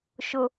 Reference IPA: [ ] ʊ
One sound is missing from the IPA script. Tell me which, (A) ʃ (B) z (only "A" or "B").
A